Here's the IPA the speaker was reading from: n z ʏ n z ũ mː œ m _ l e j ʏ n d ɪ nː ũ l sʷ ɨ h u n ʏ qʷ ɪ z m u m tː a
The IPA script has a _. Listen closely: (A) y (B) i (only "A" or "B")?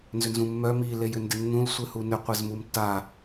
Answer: B